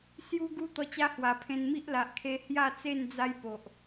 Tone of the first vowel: high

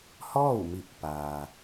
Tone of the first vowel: falling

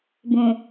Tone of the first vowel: low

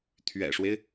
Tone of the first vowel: low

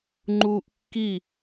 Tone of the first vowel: high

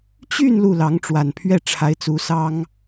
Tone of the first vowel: falling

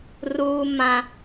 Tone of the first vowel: high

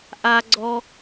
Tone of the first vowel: high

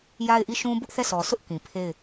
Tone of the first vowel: falling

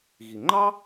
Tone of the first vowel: low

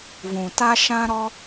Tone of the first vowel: low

